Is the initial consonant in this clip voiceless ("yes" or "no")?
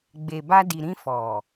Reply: no